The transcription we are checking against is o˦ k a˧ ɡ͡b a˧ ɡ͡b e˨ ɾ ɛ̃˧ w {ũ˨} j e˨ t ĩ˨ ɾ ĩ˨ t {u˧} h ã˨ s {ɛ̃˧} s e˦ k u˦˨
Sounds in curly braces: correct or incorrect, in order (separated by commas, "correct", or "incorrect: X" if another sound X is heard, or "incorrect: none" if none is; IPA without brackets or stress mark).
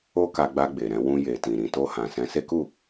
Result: incorrect: ũ˧, incorrect: o˧, correct